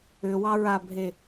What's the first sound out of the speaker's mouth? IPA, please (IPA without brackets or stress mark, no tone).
ʏ